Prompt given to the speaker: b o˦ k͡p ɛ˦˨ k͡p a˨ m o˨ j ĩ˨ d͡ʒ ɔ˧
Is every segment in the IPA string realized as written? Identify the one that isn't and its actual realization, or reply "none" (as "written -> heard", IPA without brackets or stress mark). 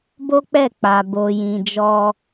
m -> b